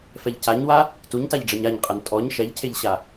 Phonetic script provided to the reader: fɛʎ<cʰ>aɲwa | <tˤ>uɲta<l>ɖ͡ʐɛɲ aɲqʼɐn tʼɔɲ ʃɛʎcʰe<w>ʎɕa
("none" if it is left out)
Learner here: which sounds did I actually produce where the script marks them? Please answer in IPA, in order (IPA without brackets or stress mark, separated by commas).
c, t, ʎ, none